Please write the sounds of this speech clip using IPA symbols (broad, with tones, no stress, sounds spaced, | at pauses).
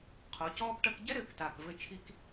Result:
qʰ o˨˦ c ɔː˦ p ʈ ɐ˧ k ɟ ɛ˦ ɾ ɘː˨ k t aː˨ k v ɘ˧ t͡ʃʰ i˧ k